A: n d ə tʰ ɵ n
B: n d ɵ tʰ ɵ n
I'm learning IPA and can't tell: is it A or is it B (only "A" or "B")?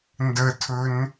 A